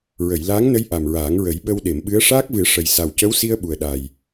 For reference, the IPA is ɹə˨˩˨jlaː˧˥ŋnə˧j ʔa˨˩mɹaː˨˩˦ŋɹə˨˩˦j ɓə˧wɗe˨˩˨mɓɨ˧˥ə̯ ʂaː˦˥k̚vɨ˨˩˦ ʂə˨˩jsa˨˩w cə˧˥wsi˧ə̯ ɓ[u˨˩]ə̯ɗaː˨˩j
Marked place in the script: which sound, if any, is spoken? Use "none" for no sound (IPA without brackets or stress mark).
u˨˩